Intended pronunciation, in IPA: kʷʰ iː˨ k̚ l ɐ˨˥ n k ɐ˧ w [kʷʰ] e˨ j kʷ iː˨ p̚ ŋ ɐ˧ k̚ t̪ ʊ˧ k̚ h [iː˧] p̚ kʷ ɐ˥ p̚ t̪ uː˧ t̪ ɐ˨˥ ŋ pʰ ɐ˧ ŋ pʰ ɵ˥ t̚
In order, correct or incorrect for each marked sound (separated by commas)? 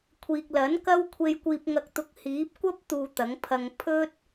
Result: correct, incorrect